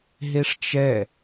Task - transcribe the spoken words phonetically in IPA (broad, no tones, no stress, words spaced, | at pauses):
ɦeʂt͡ʃɛ